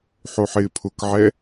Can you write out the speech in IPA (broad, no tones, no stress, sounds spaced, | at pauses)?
ħ o ħ ɪː pʰ ʊ k ʕ ɛ